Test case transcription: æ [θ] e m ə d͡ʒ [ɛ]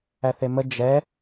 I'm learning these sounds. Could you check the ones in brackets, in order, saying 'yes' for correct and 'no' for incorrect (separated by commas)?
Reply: yes, yes